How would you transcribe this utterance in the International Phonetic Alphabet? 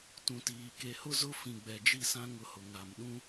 t ũ˨ t iː˨ k e˨ h ʊ˦ z ʊ˦ f ĩ˨ ɡ͡b ɛ˨ d͡ʒ i˦˨ s ã˦ ŋ ʊ˦ h ʊ˨ ŋ a˨ m ɗ ũ˦

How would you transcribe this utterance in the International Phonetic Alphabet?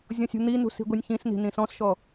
zʲ ɔ̃ sʲ ṳ n̪ i n ṳ s i̤ ɡʷ i nʲ ç ĩ s n i̤ n ĩ s ɔ̃ s ʃ ɔ

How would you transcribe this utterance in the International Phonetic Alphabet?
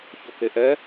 ç o k e ʔ ɛ

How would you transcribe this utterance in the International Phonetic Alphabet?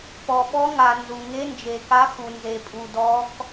p ɔ˩ ɓ ɔ˧˥ ŋ a˩ n z u˩ ŋ e˧˥ n d͡ʒ e˩ k a˧˥ x u˩ n z e˩ pʼ u˩ d ɔ˧˥ k

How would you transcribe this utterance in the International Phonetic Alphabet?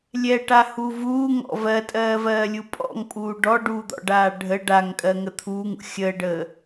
lʲ ɛ ʈ a h u v uː ŋ ɔ̰ v ɜ tʼ ɜː v ɜː lʲ u pʼ ɔ̰ ŋ pʼ uː ɖ ɔ ɖ uː d̪ ɔ̰ ɖ aː ɖʱ ə ɖ a ŋ kʼ ɜ ŋ ə t̪ʰ uː ŋ ṵ xʲ əː ɖ əː

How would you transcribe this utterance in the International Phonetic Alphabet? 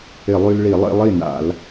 ɪ˧˩˧ lˠ y˧ l ɭ i˧˩˧ lˠ ḭ˧ lˠ i˥˩ n a̰˧˩˧ l

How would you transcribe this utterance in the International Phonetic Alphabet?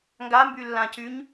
ŋ ɡ a m b y lː ã c y ɲ

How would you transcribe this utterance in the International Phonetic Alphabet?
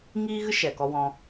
ŋ iː˦ ɣ ɨ˦ ʃ ɛ˨ k ɔ˧ w ɔ̃˧

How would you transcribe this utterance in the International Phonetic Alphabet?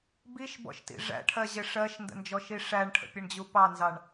b i ʃ b ɔ̰ ʃ t ḭ ʐ æ̰ ʈʰ ɜ ʑ ɪ ʂ ɜ ʃ n d ə̰ n d͡ʒ ɔ ʃ i ʂ æ ɳ ʈʰ ə̰ pʲ ə ɳ d͡ʑ u p ɑ n z ɑ ɳ

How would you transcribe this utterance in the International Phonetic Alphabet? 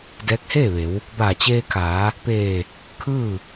d ɛː˧˥ k̚ h eː˥˨ ʋ e˩˧ w | b aː˧˩ t͡ɕ eː˧ kʰ aː˩˧ | p eː˧˩ | kʰ ɯː˥˨

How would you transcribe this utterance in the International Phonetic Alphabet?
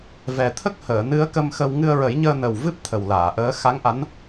v ɛ˨˩ t̪ʰ ə˦˥ k̚ h əː˨˩˨ n ɨ˧˥ ə̯ k ə˧ m x ə˧ w ŋ ɨ˧ ə̯ ɹ ə˨˩˦ j ɲ əː˧ n ə˨˩ w v ɨ˦˥ p̚ t̪ʰ ə˨˩ w l aː˨˩˨ ʔ əː˧˥ x a˧˥ ŋ ʔ a˧˥ n

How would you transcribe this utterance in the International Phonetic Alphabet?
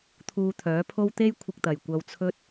t̪ʰ uː˧ t̪ʰ œː˨˥ pʰ o˥ w t̪ e˥ j kʷʰ ɪ˧ k̚ t̪ ɐ˨ j kʷ ɐ˧ w t͡sʰ ɵ˥ t̚

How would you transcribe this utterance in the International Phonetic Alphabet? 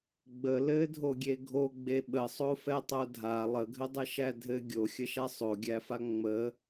ɡ͡b ə l ɘ dʱ o ɡʲ e ɡʱ o ɡ͡b e ɓ ə sˤ o f ɛ tˤ o dʱ a lˠ ə ɡʱ ɘ dˤ ɘ ʃ æ dʱ ɘ ɡʲ o xʲ ə ʃ a sˤ o ɡʲ æ f a ŋ͡m ə

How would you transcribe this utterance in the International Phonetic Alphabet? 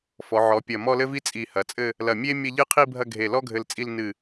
f ɔ˩˧ ʕ ɔ˩˧ pʲ ɐ˧˩ m ɔ˥˧ l ɘ˥ v i˥ t͡sʼ i˧˩ h ɐ˩˧ t͡sʼ ɘ˥˧ | l ɐ˧˩ mʲ e˥ mʲ ɐ˥˧ ʎ ɨ˥˧ qʰ i˥˧ bʱ ɐ˥˧ ɡʱ e˧˩ l ɔ˥ ɡʱ ɘ˧ l t͡sʼ i˥˧ l n ɨ˧˩

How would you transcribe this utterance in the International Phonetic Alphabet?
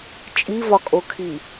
t͡ʃʼ i v ɒ kʼ o kʰ i

